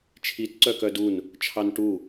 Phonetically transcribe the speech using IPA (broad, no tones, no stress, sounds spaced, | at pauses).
t͡ʃʰ i t ǀ œ k œ d u n | t͡ʃʰ ɑ n ʈ u